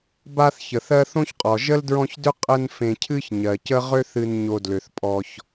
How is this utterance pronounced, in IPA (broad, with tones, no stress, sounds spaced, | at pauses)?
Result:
b a˦ θ ç ə˩ θ ɜ˦ θ õ˥ ç qʼ ɔ˩ ʒ ə˥ l d ɹ ɔ̃˦ ç d ʏ˥ qʼ ə˦ n f ẽ˨ cʰ ɨ˦ ç ɲ ɜ˩ c ə˥ ʁ ʏ˦ θ ɨ˨ n ɲ o˨ d l ʏ˩ θ pʼ ɔ˨ ç